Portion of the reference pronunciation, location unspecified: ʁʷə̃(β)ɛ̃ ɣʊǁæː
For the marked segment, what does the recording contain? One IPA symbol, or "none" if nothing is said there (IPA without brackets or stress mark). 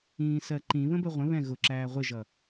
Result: β